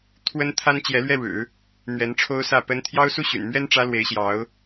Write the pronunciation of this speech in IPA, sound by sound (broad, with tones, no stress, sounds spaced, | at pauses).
t̪ʰ w ə˥ n t̪ʰ a˥ n t͡ɕ j ɛ˧˥ l ɥ ɛ˥˩ ɻ ɻ̩˨˩˦ | n̪ ɥ ɛ˧˥ n ʈ͡ʂʰ o˥ ʊ̯ s ä˥˩ p ə˥ n t̪ʰ j ɑ˥ ʊ̯ s u˥˩ ɕ y̰˨˩ n m ɥ ɛ˥ n ʈ͡ʂ ä˥ l w e˧˥ ɪ̯ ɕ j ɑ˧˥ ʊ̯